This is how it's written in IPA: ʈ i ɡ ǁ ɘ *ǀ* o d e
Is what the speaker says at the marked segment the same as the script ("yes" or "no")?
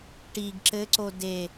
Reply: yes